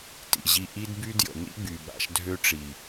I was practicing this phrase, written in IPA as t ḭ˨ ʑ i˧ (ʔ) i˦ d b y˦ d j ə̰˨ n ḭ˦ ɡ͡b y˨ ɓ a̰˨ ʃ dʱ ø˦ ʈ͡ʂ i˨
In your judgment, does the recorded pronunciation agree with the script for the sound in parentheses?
yes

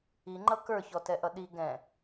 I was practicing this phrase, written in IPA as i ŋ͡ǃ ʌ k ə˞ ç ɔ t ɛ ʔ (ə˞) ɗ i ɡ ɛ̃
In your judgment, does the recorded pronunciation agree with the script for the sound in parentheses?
no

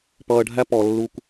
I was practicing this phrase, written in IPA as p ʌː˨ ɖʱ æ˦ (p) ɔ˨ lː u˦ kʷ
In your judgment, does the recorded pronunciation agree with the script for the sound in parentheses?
yes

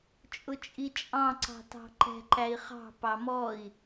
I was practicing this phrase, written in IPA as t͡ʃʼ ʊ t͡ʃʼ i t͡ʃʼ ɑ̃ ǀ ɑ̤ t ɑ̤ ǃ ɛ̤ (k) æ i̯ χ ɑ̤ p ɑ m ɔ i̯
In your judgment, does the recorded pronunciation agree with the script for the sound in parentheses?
no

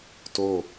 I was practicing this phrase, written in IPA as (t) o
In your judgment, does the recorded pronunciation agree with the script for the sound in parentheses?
yes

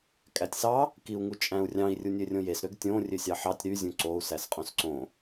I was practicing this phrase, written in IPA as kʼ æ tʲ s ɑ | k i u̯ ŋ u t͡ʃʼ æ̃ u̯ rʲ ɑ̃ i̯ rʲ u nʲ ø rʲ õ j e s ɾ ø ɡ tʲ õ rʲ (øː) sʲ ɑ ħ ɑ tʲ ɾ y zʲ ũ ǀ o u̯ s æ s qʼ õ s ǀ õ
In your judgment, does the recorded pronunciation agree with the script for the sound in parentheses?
no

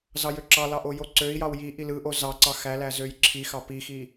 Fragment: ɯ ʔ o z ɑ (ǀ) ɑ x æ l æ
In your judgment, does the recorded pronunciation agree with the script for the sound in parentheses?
yes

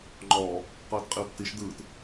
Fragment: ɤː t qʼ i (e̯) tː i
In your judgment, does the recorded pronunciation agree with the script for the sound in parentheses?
no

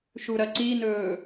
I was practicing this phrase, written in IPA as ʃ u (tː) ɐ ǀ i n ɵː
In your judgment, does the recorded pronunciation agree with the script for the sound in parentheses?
no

